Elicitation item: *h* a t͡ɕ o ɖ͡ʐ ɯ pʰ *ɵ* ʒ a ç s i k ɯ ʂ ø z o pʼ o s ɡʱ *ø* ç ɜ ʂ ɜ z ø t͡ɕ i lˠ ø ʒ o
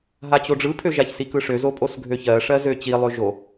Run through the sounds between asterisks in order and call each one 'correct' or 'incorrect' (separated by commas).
incorrect, incorrect, correct